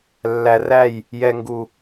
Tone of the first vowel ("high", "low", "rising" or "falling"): low